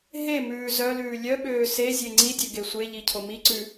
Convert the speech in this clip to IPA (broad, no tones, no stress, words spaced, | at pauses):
ɦemʉː zœlʉː lʲœɓøː se zʲeŋ͡ǀidʲø ɡesʷeʎi cʰomiǀʉ